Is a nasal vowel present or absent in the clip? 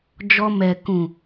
present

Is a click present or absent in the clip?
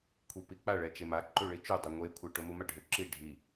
present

